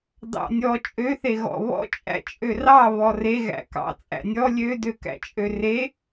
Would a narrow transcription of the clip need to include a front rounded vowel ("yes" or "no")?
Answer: yes